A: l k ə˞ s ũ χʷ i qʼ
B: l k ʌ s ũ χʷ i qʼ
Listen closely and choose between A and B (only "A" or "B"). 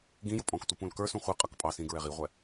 A